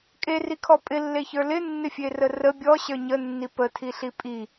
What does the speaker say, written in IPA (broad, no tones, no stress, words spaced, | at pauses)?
kʼerikʰɔ pʼɪlːeçə˞ lɪnːɪfʲerə rə bʲɔɕə˞ ɲənːi pətʰiɬi pʼi